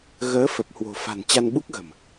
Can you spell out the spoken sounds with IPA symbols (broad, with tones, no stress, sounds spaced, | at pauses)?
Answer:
ɣ əː˨˦ f ə˨˩ p̚ h w o̤˨˩ f a̤˨˩ n t͡ɕ a˧ n ɓ u˦˥ k̚ ɣ ə̤˨˩ m